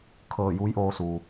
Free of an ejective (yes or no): yes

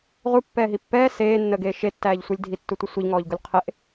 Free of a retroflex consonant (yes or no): yes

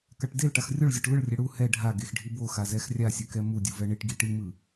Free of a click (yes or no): yes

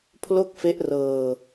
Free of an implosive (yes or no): yes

